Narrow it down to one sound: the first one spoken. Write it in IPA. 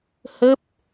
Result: h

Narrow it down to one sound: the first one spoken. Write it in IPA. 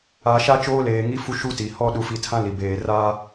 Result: a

